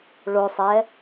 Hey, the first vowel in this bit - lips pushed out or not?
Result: yes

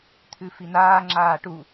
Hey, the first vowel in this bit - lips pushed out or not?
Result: yes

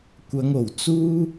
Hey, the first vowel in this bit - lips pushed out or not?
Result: no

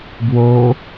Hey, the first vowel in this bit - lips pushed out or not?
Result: yes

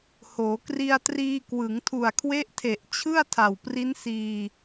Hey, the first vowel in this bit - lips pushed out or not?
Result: yes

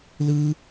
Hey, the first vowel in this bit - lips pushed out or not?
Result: no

